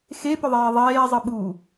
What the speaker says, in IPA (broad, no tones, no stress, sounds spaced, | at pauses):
x e p ʏ ðˤ eː ðˤ eː zˤ ɨ ɓ uː